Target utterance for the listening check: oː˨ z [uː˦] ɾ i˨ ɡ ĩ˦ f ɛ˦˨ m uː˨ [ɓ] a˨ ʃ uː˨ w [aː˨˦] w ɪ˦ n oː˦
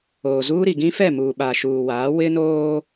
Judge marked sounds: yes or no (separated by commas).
yes, yes, yes